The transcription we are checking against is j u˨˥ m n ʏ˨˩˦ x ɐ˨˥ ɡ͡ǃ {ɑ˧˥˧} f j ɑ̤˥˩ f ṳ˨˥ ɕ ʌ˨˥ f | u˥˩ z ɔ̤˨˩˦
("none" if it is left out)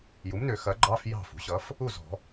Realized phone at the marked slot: ɑ˧˥˧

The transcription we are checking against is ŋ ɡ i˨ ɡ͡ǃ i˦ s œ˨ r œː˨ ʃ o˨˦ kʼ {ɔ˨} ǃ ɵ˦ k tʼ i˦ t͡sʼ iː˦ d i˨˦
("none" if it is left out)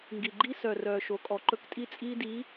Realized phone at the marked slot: ɔ˨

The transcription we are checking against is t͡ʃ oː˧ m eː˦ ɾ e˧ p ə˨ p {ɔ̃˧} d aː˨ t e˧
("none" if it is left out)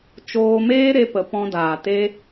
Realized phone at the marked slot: ɔ̃˧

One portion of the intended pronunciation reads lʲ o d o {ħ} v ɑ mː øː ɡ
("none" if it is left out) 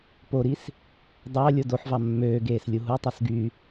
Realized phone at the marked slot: ħ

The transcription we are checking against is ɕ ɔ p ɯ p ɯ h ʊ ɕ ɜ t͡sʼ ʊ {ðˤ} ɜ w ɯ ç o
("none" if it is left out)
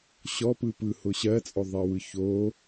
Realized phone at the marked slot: ðˤ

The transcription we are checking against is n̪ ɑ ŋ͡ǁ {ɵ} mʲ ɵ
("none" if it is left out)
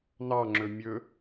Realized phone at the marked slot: ɵ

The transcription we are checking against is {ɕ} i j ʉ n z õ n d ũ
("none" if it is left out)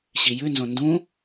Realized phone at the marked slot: ɕ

